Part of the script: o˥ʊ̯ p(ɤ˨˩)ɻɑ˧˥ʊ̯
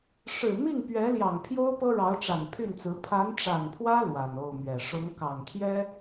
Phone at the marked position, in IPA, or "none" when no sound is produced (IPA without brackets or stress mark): ɤ˥